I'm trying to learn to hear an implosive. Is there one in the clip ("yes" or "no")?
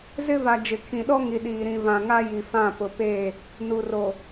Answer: yes